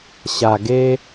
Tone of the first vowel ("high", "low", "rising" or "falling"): low